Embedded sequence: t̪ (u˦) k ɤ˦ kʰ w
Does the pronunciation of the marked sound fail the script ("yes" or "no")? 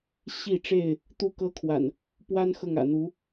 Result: no